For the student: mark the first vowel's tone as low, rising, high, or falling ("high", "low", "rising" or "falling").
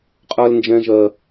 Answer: high